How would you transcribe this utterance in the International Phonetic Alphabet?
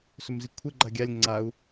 s ɵ m z i kʷʰ ɘ ɡ͡ǃ a ɡʲ a lʲ ŋ͡ǀ a u̯

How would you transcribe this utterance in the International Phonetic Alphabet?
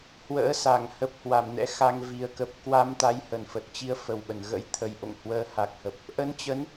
h w ə̰ː˧˥ s a˧˩ ŋ h ə˨˩ p̚ h w a˧˩ m n ɛ̰˧˥ x a˧ ŋ v i˨˩ ə̯ k ə˨˩ p̚ k w a˧ m t̪ a˨˦ j h ə˧˩ n f ə˨˩ t̚ t͡ɕ i˧ ə̯ f ə˨˩ w ɓ ə˧˩ n ɣ ə̰˧˥ j t̪ʰ ə˨˩ j ʔ o̰˧˨ ŋ h w əː˧ h a˨˩ k̚ h ə˨˩ p̚ | ʔ ə˧ n t͡ɕ ə˨˦ n

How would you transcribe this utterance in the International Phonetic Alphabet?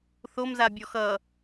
θ o m z a bʲ ɔ x ʌ

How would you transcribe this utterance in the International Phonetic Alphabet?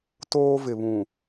t oː˦ v ɪ˨ β ũ˨

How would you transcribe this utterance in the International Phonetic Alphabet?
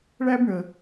ɭ æ˦ b ɳ ə˨

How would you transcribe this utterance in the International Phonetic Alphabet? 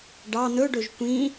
ɖ ɑ n̪ ɵ ɖ ɵ ʒ kʷ ĩ

